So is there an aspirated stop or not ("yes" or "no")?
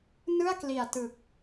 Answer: no